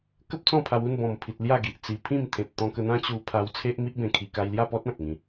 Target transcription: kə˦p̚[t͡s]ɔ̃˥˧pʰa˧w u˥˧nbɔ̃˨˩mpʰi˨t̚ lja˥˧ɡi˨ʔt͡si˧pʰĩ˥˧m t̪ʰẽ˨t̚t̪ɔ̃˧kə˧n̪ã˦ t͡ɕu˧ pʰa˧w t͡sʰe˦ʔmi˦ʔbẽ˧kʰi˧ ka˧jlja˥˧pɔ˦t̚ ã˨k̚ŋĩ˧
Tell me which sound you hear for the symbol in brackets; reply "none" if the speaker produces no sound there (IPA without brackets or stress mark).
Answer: t͡s